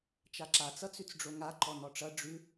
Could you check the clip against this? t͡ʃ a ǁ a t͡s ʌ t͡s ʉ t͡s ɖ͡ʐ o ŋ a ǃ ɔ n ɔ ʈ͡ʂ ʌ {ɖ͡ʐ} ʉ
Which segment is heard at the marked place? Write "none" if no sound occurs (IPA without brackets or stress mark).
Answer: ɖ͡ʐ